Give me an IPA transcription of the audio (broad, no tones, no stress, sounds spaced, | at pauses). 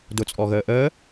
d ʊ t͡sʼ ɔ ɣ əː ʔ əː